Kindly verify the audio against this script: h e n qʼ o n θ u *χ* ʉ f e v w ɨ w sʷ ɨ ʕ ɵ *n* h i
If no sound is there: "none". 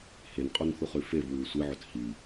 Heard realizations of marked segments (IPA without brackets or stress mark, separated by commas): χ, t